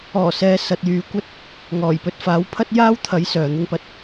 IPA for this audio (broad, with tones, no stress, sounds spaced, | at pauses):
ɔː˨˩ s ɛː˨˧ s ɐ˧ t̚ j yː˧ kʷ ɐ˥ t̚ | ŋ ɔː˨˩ j p ɵ˧ t̚ f aː˨˥ w pʰ ɐ˥ t̚ j aː˥ w t̪ʰ ɐ˨˥ j s œː˨ n̪ ɪ˥ ŋ p ɐ˥ t̚